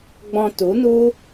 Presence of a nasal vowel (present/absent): present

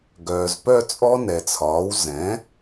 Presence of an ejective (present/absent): present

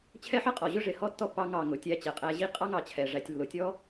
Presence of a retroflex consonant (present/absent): present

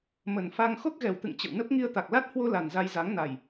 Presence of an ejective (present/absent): absent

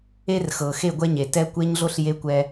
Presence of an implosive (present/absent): absent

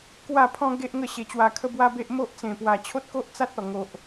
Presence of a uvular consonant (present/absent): absent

